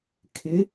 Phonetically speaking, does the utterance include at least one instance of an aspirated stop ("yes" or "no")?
yes